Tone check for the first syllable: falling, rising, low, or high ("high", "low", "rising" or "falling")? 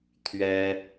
high